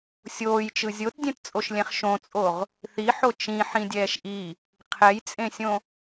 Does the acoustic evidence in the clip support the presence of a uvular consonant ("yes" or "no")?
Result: yes